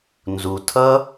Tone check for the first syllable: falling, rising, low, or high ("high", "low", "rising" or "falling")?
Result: low